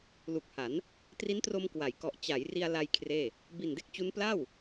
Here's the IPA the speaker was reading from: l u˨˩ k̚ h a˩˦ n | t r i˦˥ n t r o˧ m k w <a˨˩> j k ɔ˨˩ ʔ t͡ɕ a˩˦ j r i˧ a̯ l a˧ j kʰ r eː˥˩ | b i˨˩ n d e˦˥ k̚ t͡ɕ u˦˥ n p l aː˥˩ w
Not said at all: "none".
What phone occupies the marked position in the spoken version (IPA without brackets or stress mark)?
a˩˦